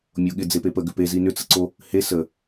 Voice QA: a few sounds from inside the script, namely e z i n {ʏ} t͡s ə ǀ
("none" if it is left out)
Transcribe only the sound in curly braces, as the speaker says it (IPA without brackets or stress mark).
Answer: ʏ